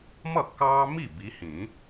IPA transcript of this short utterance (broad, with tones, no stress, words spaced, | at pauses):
mʌ˥˩kːɑː˦mi˥˩ bi˨˦hĩː˨˩˦